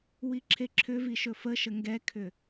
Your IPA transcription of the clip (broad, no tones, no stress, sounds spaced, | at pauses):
w i ǁʰ e ǁʰ ʏ v i ʃ ɵ f ə ʃ ə ŋ ɡ ɛ kʰ ʏ